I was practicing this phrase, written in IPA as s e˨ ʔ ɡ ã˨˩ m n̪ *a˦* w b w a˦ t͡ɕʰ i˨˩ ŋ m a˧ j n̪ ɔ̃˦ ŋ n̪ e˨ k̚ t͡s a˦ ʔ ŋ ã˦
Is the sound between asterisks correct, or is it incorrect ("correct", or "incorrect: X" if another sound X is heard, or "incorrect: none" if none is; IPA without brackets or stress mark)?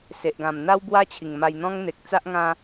correct